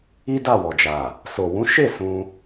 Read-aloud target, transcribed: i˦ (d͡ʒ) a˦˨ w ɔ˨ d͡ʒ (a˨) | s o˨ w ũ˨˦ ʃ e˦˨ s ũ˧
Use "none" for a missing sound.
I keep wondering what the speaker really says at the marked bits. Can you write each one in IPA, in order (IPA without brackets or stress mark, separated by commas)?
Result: d, a˨